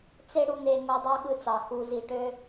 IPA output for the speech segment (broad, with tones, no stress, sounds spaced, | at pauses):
t͡s e˦ ɽ u˧ n̪ e˧ ŋ o˧ dˤ ɑ˦ ɠ ɯ˧ t͡s ɑ˨ x u˨ z i˨ ʈ ø˧